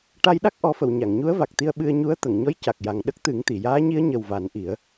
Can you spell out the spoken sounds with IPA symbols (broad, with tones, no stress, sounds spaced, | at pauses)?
ʈ a˧ j ɗ a˦˥ k̚ ʔ ɔ˨˩˦ f ə˨˩˨ w ɲ a˨˩˨ ŋ ɲ u˧˥ ə̯ v a˨˩ k̚ t̪ i˧ ə̯ ɓ ɨ˧ ə̯ ɲ u˧˥ ə̯ t̪ ə˨˩˨ ŋ ɲ ɔ˧˥ j c a˨˩ k̚ j a˨˩ ŋ ɗ ə˦˥ k̚ t̪ ɨ˨˩˦ ŋ t̪ i˨˩˨ j aː˧˥ ɲ i˧˥ ə̯ ɲ ə˨˩ w v a˨˩˦ n ʔ i˨˩˦ ə̯